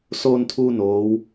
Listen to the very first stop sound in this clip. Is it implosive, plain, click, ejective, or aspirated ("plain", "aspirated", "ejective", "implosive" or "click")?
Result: aspirated